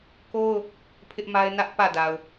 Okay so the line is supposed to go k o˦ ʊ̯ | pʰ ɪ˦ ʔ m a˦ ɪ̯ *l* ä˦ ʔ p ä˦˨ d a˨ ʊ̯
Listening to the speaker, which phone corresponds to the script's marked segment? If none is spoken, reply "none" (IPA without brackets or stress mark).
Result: n